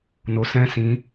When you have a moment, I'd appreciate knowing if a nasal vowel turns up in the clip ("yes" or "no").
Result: yes